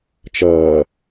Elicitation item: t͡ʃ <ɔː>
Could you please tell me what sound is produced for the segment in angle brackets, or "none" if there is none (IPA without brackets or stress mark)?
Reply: ʌː